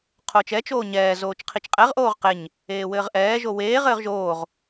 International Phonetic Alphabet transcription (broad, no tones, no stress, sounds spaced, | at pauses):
qʰ oː t͡ʃ ɛ t͡ʃ oː ɲ ɛː z oː t͡ʃ qʰ i t͡ʃ qʼ ɛ ʁ ʔ oː ʁ q e ɲ | eː w ɘː ʁ ʔ ɛː ʒ o w eː ʁ ɘː ʁ ʒ oː ʁ